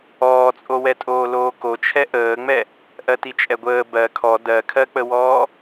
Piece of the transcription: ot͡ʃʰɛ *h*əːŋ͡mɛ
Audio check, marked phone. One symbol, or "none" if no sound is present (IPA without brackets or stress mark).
ʔ